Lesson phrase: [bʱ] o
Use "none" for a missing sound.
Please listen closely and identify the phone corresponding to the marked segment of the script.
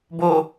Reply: b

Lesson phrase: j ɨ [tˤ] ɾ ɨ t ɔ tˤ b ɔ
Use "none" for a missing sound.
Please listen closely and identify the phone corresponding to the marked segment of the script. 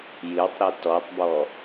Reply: tˤ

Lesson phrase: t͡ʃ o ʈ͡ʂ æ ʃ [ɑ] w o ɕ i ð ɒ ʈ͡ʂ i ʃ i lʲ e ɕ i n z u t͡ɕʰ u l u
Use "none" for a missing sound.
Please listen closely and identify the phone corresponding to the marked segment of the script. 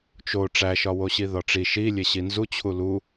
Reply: ɒ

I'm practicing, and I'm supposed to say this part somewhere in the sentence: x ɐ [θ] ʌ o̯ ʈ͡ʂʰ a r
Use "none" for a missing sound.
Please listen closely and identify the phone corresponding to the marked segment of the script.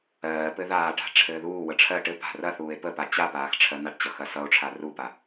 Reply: s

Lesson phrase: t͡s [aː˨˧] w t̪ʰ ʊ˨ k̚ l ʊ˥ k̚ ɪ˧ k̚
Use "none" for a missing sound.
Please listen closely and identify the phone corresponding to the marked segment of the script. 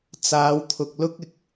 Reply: aː˨˧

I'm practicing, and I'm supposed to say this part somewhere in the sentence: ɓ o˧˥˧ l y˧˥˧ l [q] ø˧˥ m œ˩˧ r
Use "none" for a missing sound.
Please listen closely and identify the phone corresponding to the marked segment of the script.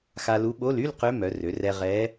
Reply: q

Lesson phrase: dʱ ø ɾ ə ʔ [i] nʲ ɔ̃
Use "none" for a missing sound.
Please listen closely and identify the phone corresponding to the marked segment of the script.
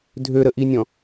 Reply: i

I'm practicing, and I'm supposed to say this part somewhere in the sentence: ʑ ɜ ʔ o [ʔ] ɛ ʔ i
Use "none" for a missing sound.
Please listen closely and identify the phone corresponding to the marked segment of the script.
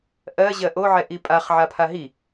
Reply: ʕ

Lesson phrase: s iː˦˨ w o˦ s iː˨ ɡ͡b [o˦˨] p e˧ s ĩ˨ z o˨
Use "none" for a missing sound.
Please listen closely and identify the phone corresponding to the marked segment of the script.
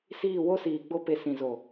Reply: o˦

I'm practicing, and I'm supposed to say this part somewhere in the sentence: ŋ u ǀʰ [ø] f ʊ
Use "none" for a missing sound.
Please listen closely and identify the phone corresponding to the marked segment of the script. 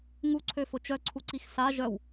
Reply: ø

